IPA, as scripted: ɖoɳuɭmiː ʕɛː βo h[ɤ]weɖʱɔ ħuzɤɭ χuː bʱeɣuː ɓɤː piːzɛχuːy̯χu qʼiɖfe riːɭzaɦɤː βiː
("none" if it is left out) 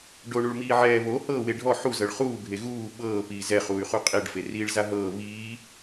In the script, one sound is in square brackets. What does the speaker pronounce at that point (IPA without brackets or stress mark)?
ɤː